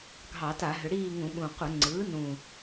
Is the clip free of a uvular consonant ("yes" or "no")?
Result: no